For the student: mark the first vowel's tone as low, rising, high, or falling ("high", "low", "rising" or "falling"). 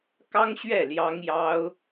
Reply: high